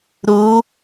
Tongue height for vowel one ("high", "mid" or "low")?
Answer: high